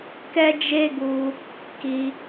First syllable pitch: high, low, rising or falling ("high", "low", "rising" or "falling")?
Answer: high